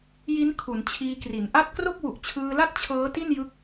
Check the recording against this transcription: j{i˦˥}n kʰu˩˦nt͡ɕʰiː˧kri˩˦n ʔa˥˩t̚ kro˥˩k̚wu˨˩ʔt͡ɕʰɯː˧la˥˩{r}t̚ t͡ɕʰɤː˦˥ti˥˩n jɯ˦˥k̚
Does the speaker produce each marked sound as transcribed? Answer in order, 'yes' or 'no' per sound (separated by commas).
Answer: yes, no